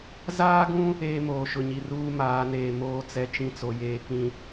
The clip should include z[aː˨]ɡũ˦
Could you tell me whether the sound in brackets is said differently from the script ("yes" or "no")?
yes